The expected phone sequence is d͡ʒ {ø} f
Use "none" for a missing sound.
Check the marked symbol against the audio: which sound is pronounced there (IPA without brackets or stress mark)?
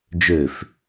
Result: ø